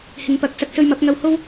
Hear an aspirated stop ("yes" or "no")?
no